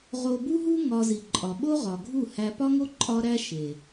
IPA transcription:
ʁo˧ bu˦ɦu˦ ŋɒ˧zi˨ ǃʼɒ˨ɓo˦ ʁɒ˨ɡʱu˦˨ hæ˧ pɒ˦ŋo˦ ǃʼɒ˦ɾæ˦ ʃe˨

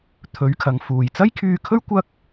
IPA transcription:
t̪ʰɵ˨˥ɥkʰɐ˨ŋ fuː˨˩jt͡sɐ˥jkʰyː˧kʰɵ˥ɥ kʷɐ˥k̚

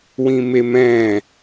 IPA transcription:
wĩmemɛ̃

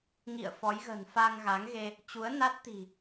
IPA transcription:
ŋḭ˧˨ə̯fɔ˨˦jɣə̤˨˩n fa˧ŋɣa˨˦ŋɣe˧ | t͡ɕu˨˦ə̯na˦˥t̚t̪i̤˨˩

